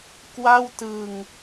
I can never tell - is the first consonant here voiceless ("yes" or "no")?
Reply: yes